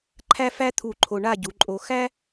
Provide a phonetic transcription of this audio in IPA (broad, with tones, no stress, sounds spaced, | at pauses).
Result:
ǃʰ æ˥ f æ˥ t̪ʰ u˧˩ ǃʰ o˧ ɳ a˥˧ ɟ u˩˧ ǃʼ o˧ x æ˥